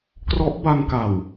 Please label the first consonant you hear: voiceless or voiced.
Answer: voiceless